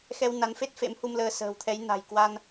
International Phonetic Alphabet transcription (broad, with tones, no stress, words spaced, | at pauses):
xɛ˧w na˨˦nfe˦˥t̚ fḛ˧˥mhu˧mləː˧ sə̤ː˨˩wt̪ʰɛ˨˦jna̤˨˩j kwa˧n